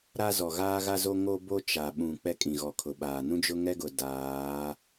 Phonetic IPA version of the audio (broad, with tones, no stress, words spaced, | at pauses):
ɾa˦zɔ˨ɣaː˦ɣa˦ zo˦ ŋo˦bo˦ t͡ʃa˨ ɓũ˨ k͡pɛ˦kʼĩ˨ɣɔ˨ kʰʊ˨ɓaː˨ nũ˦d͡ʒʊ˦ŋɛ˦ɡʊ˨ daː˨˦